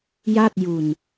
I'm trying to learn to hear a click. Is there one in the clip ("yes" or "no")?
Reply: no